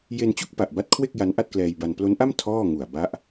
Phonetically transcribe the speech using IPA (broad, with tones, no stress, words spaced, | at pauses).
je˧nt͡ɕu˥˩k̚ pa˨˩ʔba˦˥t̚kʰwe˥˩k̚ ja˦˥nʔa˥˩t̚klɛː˧jba˧n plo˦˥nʔa˥˩m tʰɔː˥˩ ŋu˨˩a̯ba˦˥ʔ